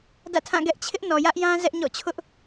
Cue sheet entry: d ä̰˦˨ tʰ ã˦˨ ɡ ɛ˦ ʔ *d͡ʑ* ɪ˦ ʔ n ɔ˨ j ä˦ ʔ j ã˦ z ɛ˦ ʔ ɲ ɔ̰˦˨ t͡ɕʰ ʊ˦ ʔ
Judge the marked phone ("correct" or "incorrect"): incorrect